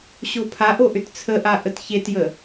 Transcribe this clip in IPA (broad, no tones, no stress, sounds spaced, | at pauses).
ɕ o pʰ a ʔ o ʔ ʏ t t͡sʰ ə ʔ a ʔ ə t ç e t j ə